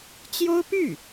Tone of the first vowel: high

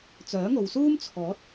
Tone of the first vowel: rising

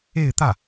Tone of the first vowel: falling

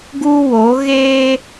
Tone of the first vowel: high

